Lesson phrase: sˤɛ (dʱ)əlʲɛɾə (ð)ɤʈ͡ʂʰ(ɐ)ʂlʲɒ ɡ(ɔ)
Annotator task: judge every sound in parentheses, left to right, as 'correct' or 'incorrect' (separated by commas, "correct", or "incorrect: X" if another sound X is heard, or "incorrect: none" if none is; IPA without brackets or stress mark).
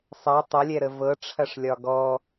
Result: incorrect: tˤ, incorrect: v, correct, correct